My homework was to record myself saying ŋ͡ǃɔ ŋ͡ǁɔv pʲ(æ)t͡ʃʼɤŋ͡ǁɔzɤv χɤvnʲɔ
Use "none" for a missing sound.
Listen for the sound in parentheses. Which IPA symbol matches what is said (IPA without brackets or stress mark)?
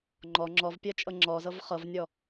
ɜ